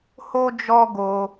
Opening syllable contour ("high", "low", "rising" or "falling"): high